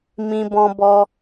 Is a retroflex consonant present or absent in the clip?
absent